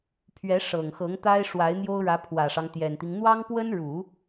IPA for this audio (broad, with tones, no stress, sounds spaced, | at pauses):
pʰ ɥ ɛ˧˥ ʂ ɤ˨˩ ŋ x ɤ˧˥ ŋ t̪ a˥ ɪ̯ ʂ w a˧˥ ɪ̯ n̪ j o˥ ʊ̯ ɻ ä˧˥ pʰ w ä˨˩ ʂ ɑ˦ ŋ t̪ j ɛ˨˩ n t̪ i˦ ŋ n̪ w ɑ˥ ŋ p w ə˥ n ɻ u˨˩˦